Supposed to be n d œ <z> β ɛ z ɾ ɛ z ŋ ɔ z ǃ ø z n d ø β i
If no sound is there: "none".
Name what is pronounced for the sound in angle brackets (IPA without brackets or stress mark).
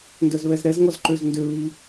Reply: z